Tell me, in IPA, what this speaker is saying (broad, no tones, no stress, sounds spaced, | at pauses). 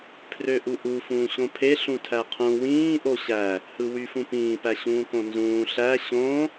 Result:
pʰ r ø ʔ u ʔ u f ũː ɕ õ pʰ e ɬ ũ tʰ æ qʰ ũ w ĩː ʔ o ɕ æ | h ɯ w y f ũ p ĩː p æ ɕ ũː k õ n z ũː ɬ æ ɕ õ